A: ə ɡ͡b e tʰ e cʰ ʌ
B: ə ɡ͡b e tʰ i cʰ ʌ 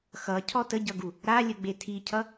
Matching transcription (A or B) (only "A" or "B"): B